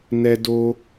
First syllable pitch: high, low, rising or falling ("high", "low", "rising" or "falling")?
high